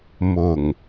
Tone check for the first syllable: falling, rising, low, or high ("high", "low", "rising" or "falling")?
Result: low